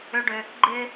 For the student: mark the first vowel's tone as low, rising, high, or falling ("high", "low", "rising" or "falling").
high